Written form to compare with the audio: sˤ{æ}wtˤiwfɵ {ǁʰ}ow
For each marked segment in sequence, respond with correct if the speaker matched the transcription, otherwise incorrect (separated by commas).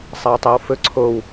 incorrect, incorrect